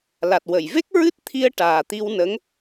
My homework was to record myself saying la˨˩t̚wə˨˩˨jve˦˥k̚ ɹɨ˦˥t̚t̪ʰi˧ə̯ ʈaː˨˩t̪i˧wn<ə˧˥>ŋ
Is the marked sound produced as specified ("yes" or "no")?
yes